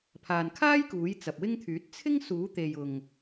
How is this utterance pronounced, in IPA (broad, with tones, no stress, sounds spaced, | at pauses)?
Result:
pʰ aː˨ n kʰ aː˥ j k uː˨˥ j t͡s ɐ˨ p̚ w ɪ˥ ŋ t̪ʰ yː˨˥ t̚ t͡sʰ ɪ˥ ŋ s uː˨˥ t̪ e˨ j ʊ˨ ŋ